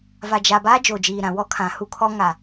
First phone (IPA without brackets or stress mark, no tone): v